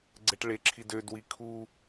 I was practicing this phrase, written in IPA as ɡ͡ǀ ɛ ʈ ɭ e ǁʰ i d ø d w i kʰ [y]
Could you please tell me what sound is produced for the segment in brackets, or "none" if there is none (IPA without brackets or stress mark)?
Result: u